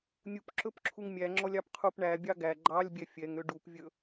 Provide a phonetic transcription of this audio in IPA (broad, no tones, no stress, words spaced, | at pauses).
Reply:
nʲup ǁɵpǁʰuŋmʲæŋ͡ǁɔlʲ ɑpqʰupɳæbʲɑ ɡæ ɡ͡ǃɑlʲbʲɛ fʲɛŋø ɖupvʲɵ